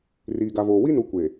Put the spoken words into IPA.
r iː˨ ɡ a˨ v oː˨ w i˦ n u˨ kʷ e˨

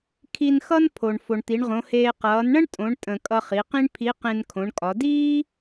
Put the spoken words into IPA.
kʰ i˧ n x ʌ˥ n pʰ o˩ ɳ f o˩ ɳ t̪ i˩˧ ɳ ʁ õ˩˧ h eː˧ q ʌː˩˧ n ɳ ə̃˥ ɳ tʼ õ˩˧ ɳ tʼ ə̃˩ kʼ ʌ˧ χ i˩˧ q ĩ˥ ɳ pʰ i˧˥ q ẽ˧ n kʰ õ˩˧ ɳ kʼ ɒ˩˧ d iː˥

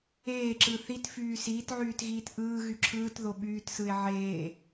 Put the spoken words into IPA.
eː ǁ ɯ θ i t f yː s iː t ʕ yː t ɣ iː t ʔ ɯː ɣ y ǁʰ ɯː t ð o ɓ yː t s ɯ e̯ ʕ eː

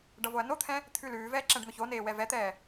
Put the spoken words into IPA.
ɖ ʌ v o ɐ̯ n o t̪ʰ ɛ̃ | t̪ʰ ʉ l ʉː v ɛː ǁ ɛ̃ ɖ n̪ ʊ ç o n eː w ɛ v ɛ t̪ ɛː

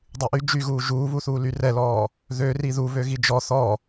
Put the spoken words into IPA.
dˤ y ʔ y d͡ʒ y ɣ uː ʒ uː β u θ uː l y r ɛ l ɔː | ð ø r i ð u β ø ɣ i d͡ʒ ɔ θ ɔ

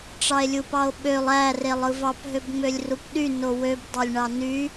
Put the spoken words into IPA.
ʈ͡ʂ ɑ e̯ lʲ u p ɑ o̯ ɓ ø lˠ æ r e lˠ ɯ v ɑ p ɦ ø b ŋ͡m ø lʲ r u p ɗ y n o w ø b dˤ ɑ lʲ ɳ ɑ n y

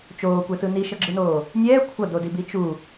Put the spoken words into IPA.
t͡ʃ oː kʷ ɛ t ɯ n i ʃ ʌ ɡ͡ǁ ɯ n oː | nʲ ɛː kʷʰ ʌ d o d i b i t͡ʃ u

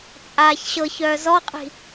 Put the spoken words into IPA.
t͡sʼ aː ç ɕ ɤ ç œː z ɔ qʼ i̤

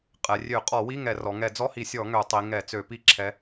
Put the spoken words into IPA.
qʼ ɛ˩˧ rʲ ø˧˩˧ qʼ ɔ˧˩˧ w i˧˥˧ ŋ ɛ˧˩˧ r ɔ˩˧ ŋ ɛ˧˩˧ d͡z ɔ˧˥˧ h i˧˩˧ sʲ ɔ˧˩˧ ŋ ø˧˩˧ tˤ i˩˧ ŋ ɛ˧˩˧ t͡s ø˧˩˧ p i˧˩˧ ǁʰ ɛ˩˧

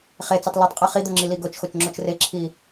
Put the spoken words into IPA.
χ e t͡s e tˤ l o tˤ qʼ ɜ χ i d̪ o ŋ͡ǁ i l i ɡ o t͡ʃ x o t͡ʃ ŋ͡ǁ o t͡ʃ r e ǁʰ i

